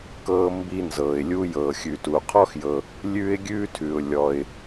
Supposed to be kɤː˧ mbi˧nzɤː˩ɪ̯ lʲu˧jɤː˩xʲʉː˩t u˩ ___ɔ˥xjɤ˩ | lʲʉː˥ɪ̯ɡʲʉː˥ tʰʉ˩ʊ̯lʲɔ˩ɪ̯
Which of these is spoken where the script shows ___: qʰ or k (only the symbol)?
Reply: qʰ